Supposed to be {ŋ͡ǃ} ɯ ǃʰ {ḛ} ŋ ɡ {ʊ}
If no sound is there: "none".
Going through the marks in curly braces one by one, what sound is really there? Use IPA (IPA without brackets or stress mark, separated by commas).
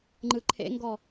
ŋ͡ǃ, ḛ, ɔ